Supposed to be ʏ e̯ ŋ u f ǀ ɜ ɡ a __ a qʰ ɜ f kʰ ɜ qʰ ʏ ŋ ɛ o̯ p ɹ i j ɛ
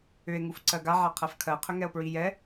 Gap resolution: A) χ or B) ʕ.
B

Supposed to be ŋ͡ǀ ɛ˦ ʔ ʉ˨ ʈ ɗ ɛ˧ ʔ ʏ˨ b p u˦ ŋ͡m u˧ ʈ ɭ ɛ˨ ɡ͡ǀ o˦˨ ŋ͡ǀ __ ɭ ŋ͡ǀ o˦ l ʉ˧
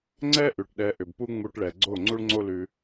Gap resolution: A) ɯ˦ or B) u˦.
B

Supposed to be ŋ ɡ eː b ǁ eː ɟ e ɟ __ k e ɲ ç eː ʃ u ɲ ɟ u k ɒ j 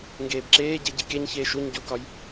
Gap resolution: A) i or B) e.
A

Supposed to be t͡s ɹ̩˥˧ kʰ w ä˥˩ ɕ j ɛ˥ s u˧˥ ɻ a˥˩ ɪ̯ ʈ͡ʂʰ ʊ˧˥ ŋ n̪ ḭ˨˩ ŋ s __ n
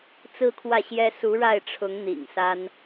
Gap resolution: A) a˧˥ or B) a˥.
B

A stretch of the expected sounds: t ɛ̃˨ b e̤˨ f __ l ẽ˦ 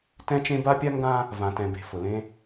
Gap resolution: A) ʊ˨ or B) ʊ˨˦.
A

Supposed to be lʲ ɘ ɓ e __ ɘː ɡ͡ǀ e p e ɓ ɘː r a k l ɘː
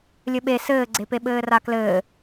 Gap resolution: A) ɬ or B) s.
B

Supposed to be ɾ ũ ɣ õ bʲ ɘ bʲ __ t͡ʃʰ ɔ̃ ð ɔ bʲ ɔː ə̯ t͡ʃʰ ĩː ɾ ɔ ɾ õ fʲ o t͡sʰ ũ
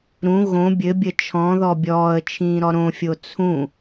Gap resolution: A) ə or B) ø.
A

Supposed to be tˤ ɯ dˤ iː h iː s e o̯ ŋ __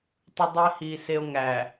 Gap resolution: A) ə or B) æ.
B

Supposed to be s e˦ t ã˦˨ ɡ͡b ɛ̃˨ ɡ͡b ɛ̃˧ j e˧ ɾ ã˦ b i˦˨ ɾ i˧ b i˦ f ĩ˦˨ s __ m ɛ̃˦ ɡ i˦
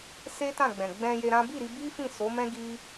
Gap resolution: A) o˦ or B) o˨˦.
B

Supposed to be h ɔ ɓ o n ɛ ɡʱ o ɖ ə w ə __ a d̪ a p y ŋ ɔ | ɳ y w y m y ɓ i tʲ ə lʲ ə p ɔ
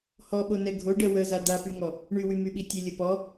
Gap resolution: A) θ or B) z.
B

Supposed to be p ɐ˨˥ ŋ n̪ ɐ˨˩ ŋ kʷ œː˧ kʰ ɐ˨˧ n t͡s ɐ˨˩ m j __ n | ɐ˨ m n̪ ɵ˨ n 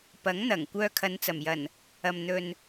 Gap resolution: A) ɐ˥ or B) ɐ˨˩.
B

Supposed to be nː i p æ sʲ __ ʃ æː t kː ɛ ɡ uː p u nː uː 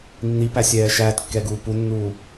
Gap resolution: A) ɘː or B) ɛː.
B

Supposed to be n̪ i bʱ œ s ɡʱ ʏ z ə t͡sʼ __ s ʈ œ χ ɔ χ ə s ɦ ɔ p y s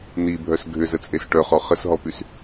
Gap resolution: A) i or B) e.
B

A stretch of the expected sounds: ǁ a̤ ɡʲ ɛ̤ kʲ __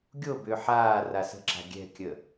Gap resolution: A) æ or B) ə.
B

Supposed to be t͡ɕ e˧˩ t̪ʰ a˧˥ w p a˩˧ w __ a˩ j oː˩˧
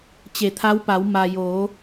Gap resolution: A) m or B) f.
A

